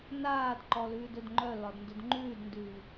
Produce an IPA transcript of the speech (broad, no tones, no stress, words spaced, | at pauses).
naːd ǃɔlʉːdɵdŋ͡ǃœ lɒdndɵdŋ͡ǃʉːdndʉː